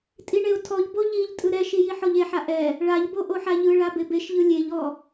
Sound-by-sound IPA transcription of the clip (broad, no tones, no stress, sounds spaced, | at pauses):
tʼ i ɳ e ʊ̯ tʰ ɔ ʎ b o ʎ i ʎ tʼ ɯ ɾ ɛ ʃ i j i ħ ɔ ʎ e ħ a ʔ ɛ | ɭ a ʎ b o ʔ o ħ a ʎ ɯ ɭ a b e b e ʃ ʎ ɯ lʲ e ʎ ɔ